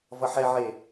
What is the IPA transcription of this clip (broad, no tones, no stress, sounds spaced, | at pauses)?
v ʌ ħ ɛ ʕ e